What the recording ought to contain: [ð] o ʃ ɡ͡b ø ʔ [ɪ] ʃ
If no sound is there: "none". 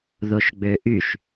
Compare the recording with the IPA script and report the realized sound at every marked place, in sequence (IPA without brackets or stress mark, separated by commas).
ð, y